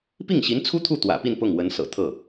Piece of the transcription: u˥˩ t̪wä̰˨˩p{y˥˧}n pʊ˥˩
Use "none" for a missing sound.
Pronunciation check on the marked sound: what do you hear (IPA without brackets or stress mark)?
i˥˧